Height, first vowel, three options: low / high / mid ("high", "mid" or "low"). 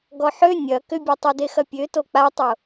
mid